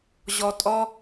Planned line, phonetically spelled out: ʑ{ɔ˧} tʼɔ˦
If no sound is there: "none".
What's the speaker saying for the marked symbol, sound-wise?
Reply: ɔ˧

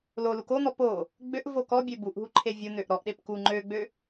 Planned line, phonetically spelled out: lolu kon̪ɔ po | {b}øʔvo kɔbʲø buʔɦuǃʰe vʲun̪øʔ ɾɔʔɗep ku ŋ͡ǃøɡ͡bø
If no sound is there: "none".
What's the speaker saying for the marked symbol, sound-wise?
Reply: ɡ͡b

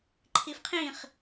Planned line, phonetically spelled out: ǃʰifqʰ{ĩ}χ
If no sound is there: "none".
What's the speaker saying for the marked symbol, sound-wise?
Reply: ĩ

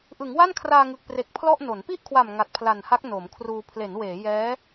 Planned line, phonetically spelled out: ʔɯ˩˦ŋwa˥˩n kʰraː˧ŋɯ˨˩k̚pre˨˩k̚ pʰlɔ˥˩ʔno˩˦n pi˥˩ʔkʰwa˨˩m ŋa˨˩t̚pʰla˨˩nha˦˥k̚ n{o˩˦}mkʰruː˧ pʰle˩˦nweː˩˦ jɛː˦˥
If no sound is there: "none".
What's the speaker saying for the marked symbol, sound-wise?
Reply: o˩˦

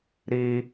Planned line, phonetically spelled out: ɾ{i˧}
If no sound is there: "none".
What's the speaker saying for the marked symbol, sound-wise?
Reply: i˧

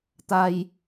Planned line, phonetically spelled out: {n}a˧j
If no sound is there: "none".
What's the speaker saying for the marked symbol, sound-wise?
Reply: t̪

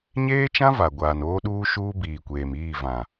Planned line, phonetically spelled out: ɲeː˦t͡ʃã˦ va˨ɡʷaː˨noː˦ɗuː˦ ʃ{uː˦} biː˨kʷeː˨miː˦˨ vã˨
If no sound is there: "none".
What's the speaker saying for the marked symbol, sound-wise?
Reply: uː˦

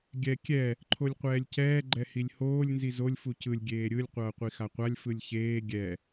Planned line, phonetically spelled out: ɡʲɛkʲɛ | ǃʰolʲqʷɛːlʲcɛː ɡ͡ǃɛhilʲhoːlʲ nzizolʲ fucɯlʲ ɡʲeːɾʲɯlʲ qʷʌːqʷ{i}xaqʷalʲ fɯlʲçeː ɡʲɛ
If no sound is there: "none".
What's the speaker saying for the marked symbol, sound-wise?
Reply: i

